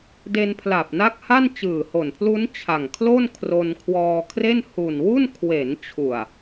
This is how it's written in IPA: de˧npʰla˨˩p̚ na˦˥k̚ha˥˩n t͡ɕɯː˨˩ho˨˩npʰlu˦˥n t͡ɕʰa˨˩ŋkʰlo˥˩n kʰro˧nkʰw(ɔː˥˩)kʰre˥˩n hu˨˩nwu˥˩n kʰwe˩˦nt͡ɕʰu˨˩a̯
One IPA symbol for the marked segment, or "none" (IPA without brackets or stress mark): ɔː˧